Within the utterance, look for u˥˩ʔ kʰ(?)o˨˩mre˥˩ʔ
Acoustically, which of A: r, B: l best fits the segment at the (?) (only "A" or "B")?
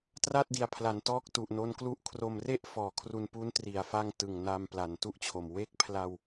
A